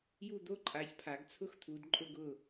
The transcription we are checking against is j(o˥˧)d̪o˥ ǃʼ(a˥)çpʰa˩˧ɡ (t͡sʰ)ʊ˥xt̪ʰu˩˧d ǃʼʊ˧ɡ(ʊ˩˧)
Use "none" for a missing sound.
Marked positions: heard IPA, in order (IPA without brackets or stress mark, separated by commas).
u˥˧, a˩˧, t͡sʰ, ʊ˧˩